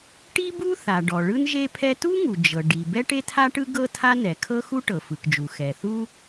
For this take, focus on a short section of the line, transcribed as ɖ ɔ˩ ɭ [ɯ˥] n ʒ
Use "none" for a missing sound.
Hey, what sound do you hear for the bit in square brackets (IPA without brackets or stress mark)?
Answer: ɯ˥